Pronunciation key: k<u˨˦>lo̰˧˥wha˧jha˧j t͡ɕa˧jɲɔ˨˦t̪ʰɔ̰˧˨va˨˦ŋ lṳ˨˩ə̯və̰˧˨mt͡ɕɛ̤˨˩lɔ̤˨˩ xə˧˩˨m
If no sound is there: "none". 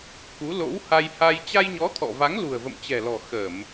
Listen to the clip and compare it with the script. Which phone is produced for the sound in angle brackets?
u˨˦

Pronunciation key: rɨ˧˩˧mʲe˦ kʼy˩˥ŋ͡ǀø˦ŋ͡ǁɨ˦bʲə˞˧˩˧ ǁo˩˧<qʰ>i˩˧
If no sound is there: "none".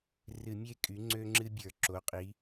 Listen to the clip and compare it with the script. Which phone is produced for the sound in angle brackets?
qʼ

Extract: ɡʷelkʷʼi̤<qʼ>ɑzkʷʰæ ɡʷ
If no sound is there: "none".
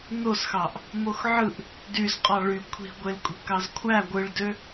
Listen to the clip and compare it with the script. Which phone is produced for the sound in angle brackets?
k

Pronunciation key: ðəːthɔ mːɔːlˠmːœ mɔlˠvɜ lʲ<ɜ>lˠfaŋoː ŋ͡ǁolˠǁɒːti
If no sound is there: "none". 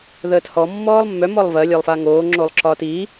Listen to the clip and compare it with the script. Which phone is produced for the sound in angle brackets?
ɜ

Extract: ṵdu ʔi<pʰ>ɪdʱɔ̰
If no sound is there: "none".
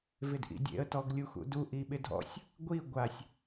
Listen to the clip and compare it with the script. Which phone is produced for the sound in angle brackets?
ɓ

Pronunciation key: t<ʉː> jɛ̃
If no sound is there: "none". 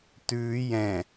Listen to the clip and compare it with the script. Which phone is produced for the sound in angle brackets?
ʉː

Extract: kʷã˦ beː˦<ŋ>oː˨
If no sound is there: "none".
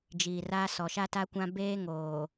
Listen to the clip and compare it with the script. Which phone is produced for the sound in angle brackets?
ŋ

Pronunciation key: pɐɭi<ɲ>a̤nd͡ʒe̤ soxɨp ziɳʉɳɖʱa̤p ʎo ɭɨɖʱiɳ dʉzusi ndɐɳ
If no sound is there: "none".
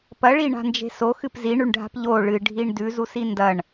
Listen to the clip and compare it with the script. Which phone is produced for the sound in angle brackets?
ɳ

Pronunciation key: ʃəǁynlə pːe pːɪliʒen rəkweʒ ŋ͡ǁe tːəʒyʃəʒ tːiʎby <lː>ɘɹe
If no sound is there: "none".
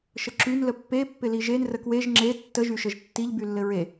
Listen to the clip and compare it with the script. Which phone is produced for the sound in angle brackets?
lː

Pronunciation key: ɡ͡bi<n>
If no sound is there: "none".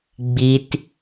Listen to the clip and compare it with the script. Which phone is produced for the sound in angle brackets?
t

